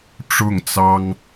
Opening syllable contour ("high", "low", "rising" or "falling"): falling